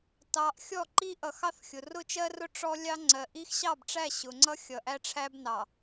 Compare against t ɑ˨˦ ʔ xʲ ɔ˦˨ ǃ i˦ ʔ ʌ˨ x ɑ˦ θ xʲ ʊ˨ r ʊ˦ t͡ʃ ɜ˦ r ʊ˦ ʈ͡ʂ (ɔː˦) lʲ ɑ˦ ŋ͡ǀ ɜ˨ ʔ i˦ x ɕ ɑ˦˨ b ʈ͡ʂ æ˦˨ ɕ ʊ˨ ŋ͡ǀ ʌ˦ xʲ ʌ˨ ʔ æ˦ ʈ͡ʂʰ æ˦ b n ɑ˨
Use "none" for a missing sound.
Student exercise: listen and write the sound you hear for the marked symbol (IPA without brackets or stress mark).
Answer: ɔ˦